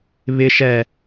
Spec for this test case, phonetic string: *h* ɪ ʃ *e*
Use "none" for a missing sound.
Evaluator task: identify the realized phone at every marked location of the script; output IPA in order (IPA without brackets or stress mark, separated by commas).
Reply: β, ɛ